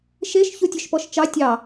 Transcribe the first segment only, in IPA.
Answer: ʃ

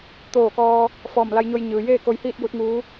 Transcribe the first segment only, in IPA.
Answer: t̪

